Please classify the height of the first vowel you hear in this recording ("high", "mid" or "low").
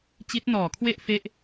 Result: high